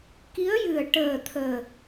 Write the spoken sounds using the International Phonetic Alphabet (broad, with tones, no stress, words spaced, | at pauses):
ki˧˥ə̯jɨ˨˩ə̯ ʈəː˨˩ t̪ʰəː˨˩